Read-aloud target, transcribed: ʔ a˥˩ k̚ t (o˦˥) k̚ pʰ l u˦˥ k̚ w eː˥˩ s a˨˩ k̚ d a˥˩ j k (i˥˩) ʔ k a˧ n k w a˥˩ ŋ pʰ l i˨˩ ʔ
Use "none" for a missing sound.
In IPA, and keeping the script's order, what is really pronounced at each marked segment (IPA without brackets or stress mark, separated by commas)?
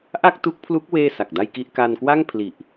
u˦˥, i˥˩